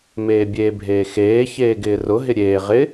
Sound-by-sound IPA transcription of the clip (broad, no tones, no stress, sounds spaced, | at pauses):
m eː bʲ eː bʱ eː x eː ç eː ɡ ɪː r ʊ ɦ ɪ ɾʲ eː ʁ ɪ